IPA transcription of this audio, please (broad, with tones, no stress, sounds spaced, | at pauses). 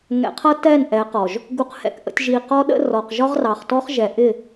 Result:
ŋ ɛ̰˨ qʰ ʌ˦ t ɛ˦˨ n ʔ ɛ˨˦ q ɔ˨ ʒ | ɡ u˨ q h ɛ̰˨ k ʔ ə̰˨ tʲ ʒ i˨ q ɔ˦ ɗ ə̰˦ r ɔ˨ q ʒ ɒ˦ ʁ r ɑ˨ χ t ɔ˦ χ ʒ ɛ˨ ʔ ɪ˦˨